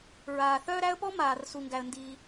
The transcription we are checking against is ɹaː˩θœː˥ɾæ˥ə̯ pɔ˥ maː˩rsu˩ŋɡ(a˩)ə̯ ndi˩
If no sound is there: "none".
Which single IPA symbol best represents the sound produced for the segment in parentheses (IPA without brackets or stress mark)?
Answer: æ˩